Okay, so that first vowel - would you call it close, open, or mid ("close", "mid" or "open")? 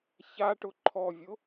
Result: open